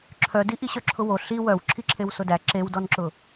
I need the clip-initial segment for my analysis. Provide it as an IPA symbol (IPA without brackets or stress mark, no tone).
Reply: ǁʰ